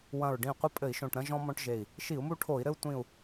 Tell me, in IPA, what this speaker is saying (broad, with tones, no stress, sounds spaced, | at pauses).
w ɐ̃˧˩ ɹ ɖ ĩ˧˩ qʷ ɐ˦ pʼ ɘ˧˩˧ i̯ ʃ õ˧˩ ʈ ɾ ɐ̃˦ ʒ ɔ̃˦ m ɔ̃˦ ʈ ʒ e˧˩ i̯ | ʃ i˧˩˧ u̯ m u˦ ʈʰ o˧˩˧ i̯ ɾ ɘ˦ u̯ tʷ ĩ˧˩ u̯